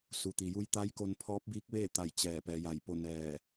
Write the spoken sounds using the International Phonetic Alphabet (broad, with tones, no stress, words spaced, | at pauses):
su˩t̪i˩ju˧˥j t̪a˧˥jko˧n pʰɔː˧˥p̚biː˧˥k̚ʋeː˥˨t̪a˧˩j t͡ɕɛː˧˩pɛː˩˧ja˧˩jpo˥˨ nɛː˧˩